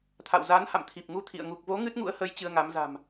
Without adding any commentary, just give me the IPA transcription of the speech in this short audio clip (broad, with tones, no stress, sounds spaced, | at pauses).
t̪ʰ a̰˧˨ w z aː˨˦ n h a̰˧˨ m t̪ʰ i˨˩ p̚ ŋ u˧ t̪ʰ ḭ˧˨ ə̯ ŋ u˨˩ k̚ v o˨˦ ŋ ɨ˦˥ t̚ ŋ ṵ˧˥ ə̯ h ə˨˦ j t͡ɕ ɨ˧ ə̯ ŋ a˨˦ m z a̤˨˩ m